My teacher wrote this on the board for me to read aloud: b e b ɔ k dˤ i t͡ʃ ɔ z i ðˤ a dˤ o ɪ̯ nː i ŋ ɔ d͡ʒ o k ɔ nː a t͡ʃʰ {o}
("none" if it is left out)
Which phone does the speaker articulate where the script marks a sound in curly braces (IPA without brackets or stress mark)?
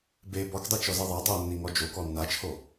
o